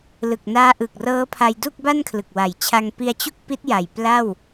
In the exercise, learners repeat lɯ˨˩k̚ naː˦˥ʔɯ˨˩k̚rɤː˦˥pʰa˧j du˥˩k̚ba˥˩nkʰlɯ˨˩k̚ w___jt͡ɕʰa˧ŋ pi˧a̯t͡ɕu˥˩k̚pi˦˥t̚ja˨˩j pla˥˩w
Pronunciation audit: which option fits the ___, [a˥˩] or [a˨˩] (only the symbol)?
a˨˩